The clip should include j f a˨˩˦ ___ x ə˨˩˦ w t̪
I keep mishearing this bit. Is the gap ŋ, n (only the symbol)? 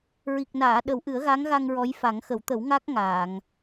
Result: ŋ